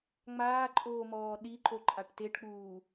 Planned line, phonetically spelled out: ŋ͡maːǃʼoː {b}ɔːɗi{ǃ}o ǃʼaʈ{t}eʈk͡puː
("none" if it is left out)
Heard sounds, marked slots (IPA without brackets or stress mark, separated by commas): m, ǃ, t